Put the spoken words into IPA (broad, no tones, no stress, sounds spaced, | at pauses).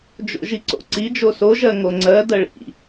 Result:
d͡ʒ o̰ ʒ i ǀ o̰ ǀ i d͡ʒ o s o ʒ ɜ ŋ o ŋ͡ǀ ɜ d ɜ ɭ ḭ